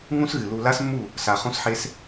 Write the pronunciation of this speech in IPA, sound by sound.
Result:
ŋ ũ˦ s ɣ ɨ˨ l u˧ l a˦ s mː u˦˨ | s a˨ χ ũ˦ s ħ e˦ s

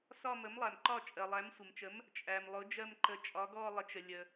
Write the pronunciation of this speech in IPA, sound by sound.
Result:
s ɒ˦˨ m ə˩˥ m lˠ æ˩ m ǃ ɒ˦˨ t͡ʃʼ ɜ˩ lˠ æ˩˥ m sʷ ə˩ m t͡ʃ ə˩˥ m | t͡ʃʼ æ˩ m lˠ ʊ˩˥ d͡ʒ ɜ˦˨ m ǃ ə˩˥ t͡ʃʼ ɒ˩˥ ɡ ɔ˦˨ lˠ ə˩˥ t͡ʃ ə˩ lʲ ə˩

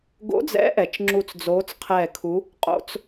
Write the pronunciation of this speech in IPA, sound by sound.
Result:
ɡ o̰˨˦ d͡z ɛ̰˨˦ ʔ ɛ˩ t͡ʃ ŋ͡ǁ u˧˩ t͡s d͡z oː˨˦ t͡s qʰ ɛː˧˩ kʰ u˨˦ | qʼ o̰˧˩˧ t͡s

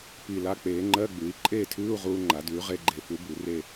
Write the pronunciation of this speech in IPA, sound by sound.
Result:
p i˨˩ l a˧ k͡p eː˩˧ ŋ͡ǃ ɜ˧˥˧ ɡ͡b ʉ˩˧ i̯ ǃʼ eː˥˨ tʰ ʉː˧˥˧ u̯ ʁ uː˧ ŋ͡ǃ a˩˧ d ʉː˩˧ ʁ e˧ ɡ͡ǃ e˨˩ f u˨˥ b u˩˧ r e˥˨

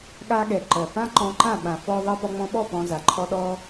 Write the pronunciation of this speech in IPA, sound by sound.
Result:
ɠ a˧ ɠ ɛ˨ ǃ ɜ˨ f ã˦ ǃ ɔ̃˧ ǃ ã˦˨ ɓ ã˨ f ɔ˧ ðˤ ɜ˧ p ɔ˧ ŋ͡m ɔ̃˧ ɓ ɔ˦˨ p ɔ̃˧ z a˨ ǃʰ ɔ˦ ɗ ɔ˦

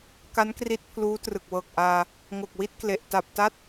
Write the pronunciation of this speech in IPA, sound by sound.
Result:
k a˦˥ n k r i˦˥ t̚ pʰ l uː˦˥ t r ɯ˨˩ k̚ w ɤː˨˩ k̚ ʔ aː˧ | ŋ o˨˩ k̚ w i˦˥ t̚ k l e˨˩ ʔ t a˨˩ p̚ t a˦˥ t̚

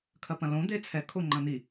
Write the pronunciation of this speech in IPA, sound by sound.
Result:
kʰ ɐ p ɐ̃ l õ d̪ e t͡sʰ ɛ kʰ o ŋ͡ǃ ɐ̃ n̪ i

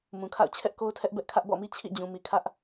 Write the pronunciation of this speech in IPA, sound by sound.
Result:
m ũ˨ kʰ a̰˦˨ ʊ̯ t͡ɕʰ ɛ˦ ʔ k o˦ ʊ̯ tʰ ɛ˦ ʔ b ɛ˦ ʔ kʰ ä˦ ʔ b ɔ̰˦˨ m i˦ t͡ɕʰ ḭ˦˨ d͡ʑ ũ˨ m i˨ kʰ ä˦ ʔ

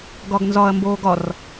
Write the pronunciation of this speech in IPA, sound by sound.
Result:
ɡ ɒ ɡ n z ɒ ɐ̯ m b oː ɡ ɒ r

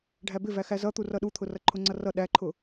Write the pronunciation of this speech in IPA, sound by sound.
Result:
ɖʱ æ b ɪ v æ x æ z ʌ t̪ u r ʌ ɗ u t̪ʰ ʊ r ʌ ǃʰ ʊ ŋ͡ǀ ʌ r ʌ ɗ æ ǃʰ ʊ

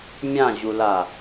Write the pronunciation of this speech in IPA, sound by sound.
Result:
mʲ ã ʑ u l a

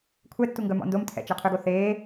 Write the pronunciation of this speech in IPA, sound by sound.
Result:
kʷʰ ɛ tː u ŋ ɡ œ m ɔ̰ n d o m tʰ ɛ̰ t͡ʃ ɛ qʰ ø ɡ o θ eː

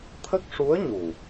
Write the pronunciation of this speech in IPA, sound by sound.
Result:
t̪ʰ ə˦˥ k̚ ʂ u˧˥ ə̯ ɲ u˨˩

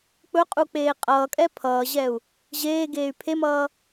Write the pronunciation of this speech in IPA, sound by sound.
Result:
k͡p ɵ qʼ u k͡p eː qʼ ʌː kʼ ɛ pʰ ʌː ʑ ɛ u̯ | ʑ eː ɡ eː y̯ pʰ e m ʌː

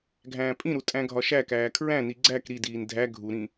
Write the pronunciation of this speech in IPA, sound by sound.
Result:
ɡʱ æ̃ː pʼ ĩ ɾ u tʼ æ̃ ɡʱ ɒ ʃ æ k æː kʰ ɹ æ̃ n i ɡ͡ǀ æ k ɾ i d iː n dʱ æ ɡʱ u ɾ ĩ

